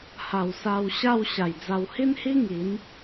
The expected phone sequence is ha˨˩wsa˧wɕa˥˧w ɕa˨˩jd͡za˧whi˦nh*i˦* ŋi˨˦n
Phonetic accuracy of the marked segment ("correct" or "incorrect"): correct